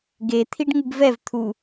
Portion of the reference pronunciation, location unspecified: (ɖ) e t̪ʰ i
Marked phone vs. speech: incorrect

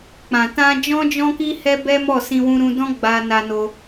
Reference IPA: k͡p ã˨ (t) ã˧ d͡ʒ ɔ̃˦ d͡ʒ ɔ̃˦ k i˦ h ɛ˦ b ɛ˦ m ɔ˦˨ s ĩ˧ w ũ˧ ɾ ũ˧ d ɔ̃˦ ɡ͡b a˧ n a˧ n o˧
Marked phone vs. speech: correct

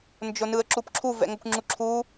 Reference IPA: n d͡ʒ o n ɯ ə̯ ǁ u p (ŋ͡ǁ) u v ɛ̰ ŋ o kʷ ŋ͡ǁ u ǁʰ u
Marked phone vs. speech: incorrect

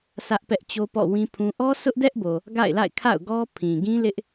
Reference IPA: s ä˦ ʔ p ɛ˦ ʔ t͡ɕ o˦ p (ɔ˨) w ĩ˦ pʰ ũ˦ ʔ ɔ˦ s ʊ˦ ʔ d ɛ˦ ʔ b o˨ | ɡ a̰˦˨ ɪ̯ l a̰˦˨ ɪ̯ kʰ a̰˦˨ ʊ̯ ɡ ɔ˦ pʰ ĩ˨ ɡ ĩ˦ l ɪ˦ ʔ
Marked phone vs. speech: incorrect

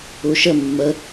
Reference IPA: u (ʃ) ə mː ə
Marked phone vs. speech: correct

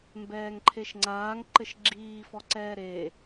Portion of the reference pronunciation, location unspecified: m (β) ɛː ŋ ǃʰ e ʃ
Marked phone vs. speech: incorrect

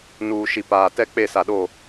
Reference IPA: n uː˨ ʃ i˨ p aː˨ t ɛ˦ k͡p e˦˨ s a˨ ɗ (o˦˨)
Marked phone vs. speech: correct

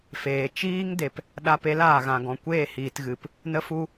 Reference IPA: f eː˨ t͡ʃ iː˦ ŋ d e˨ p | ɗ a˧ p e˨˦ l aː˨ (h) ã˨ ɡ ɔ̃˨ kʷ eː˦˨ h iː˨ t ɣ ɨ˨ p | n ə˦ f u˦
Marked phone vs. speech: incorrect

